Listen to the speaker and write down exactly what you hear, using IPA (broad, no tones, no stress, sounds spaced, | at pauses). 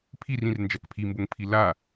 pʰ i r ĩ r n d͡ʒ a k pʰ i m b o ŋ pʰ i l a